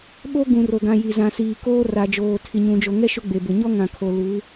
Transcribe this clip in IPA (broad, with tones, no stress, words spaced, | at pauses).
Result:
ɓo˦ ɡũ˨ ro˨ɡã˨ ji˨zã˨siː˨ koː˦ra˨d͡ʒoː˨ tʰi˨ɲũ˨d͡ʒo˨ŋɛ˦ ʃʊ˦ɡ͡be˨bʊ˨ ɲɔ˦ŋã˨kʰo˨ lu˨˦